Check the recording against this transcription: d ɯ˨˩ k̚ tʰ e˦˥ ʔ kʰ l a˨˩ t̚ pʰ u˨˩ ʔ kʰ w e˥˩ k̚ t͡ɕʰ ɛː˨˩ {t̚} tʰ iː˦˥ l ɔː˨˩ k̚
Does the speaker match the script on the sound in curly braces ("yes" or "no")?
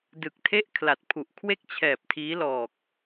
no